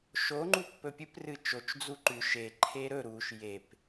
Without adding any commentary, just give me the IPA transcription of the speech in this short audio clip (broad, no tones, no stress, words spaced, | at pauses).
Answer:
ʃo ŋ͡ǃupːɵpʲɨp rɨt͡ʃot͡ʃ d͡zuǃʉ ʃe ǃʰeɾɵ ɾuʃ jep